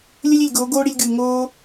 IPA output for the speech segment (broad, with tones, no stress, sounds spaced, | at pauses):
lʲ ɘ˦ lʲ i˨ lʲ ɡ oː˨˦ ɡ oː˦ ɽ i˧ lʲ ɡ ɨː˨ ŋ oː˦